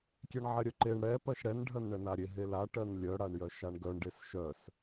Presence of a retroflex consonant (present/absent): present